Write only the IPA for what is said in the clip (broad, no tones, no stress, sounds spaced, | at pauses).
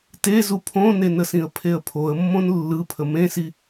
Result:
t e z u pʰ õ n e n ə s ĩ ə̯ pʰ e ə̯ pʰ o ə̯ mː õ n lː ɯ pʰ ə m ẽ s i